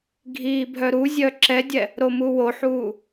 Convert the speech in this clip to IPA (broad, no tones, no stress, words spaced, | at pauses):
ɡʱiːbʱœɾuzʲœ ǁɛdʲɛ | ɾomuwoħuː